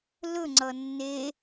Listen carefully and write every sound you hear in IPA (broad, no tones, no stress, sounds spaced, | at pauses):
l ɵ ŋ͡ǀ ʌ nː e